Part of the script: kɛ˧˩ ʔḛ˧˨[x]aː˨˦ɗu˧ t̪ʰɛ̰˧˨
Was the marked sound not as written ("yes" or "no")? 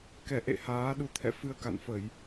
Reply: yes